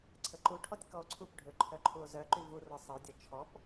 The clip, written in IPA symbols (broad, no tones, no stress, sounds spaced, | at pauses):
ǀʰ ə ǃ u ʈʰ ɔ tʲ k ɔ o̯ ǀʰ u p ɖʱ ø ǃʰ œ ǃʰ u o̯ z œ ǃ y v u r ɔ sˤ ə o̯ dʲ ɔ t͡ʃʰ ɔ p